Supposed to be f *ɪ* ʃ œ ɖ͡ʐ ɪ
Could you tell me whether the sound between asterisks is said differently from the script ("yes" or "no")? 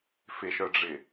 no